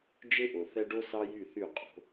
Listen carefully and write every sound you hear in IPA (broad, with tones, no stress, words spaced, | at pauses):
d͡ʒe˦ʔo˨θɛ˦ ɖo˦sɑ˦jy˦˨θy˦˨ qʼo̤˨˦